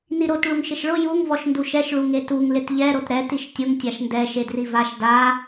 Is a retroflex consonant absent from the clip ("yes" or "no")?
no